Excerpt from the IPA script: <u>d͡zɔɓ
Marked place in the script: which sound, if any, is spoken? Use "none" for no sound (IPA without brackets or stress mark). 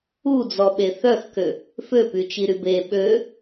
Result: u